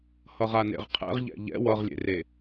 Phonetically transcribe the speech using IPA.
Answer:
hʌʁanḛʁqʰɛ̰ʁ ʎɛ̰ʎɛ̰ wʌʁlʲḛre

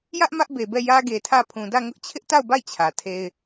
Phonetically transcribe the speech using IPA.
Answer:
jä˦ʔ mä˦ʔbe˨bɛ˦˨ jä˦ɡe˨tʰä˦˨ pʰũ˨dä˦˨ŋʊ˦ʔ t͡ɕʰɪ˦ʔta˦˨ʊ̯ba˦˨ɪ̯ t͡ɕʰä˨tʰe˦ɪ̯

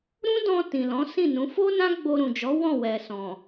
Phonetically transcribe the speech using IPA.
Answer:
ɾũ˦dɔ̃˧ tĩ˨lɔ̃˨˦ sĩ˦˨nũ˨˦ fo˦nã˦ ɡ͡bo˧ɾũ˨d͡ʒɔ˨˦ wɔ̃˦˨wɛ˨sɔ̃˨

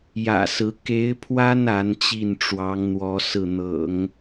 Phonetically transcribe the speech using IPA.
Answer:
jä̰˨˩sɹ̩˧˥ ke˧˥ɪ̯pʰwa˥n a˧˥n t͡ɕi˥˩nʈ͡ʂwɑ˧˥ŋn̪wɔ˧˥ sɹ̩˥˩n̪ɤ̰˨˩˦ŋ

